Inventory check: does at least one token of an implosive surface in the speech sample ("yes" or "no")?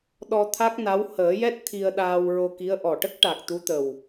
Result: yes